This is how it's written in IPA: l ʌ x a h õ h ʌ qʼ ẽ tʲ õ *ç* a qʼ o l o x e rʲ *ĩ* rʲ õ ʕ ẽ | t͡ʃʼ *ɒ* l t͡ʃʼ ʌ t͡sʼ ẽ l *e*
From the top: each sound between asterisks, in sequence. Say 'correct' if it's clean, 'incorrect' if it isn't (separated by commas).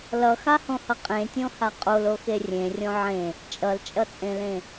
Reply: incorrect, incorrect, incorrect, incorrect